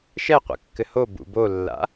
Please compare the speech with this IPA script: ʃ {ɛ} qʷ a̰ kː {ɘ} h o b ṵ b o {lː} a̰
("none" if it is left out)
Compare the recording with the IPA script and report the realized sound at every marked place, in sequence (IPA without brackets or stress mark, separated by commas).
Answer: ɛ, ɘ, lː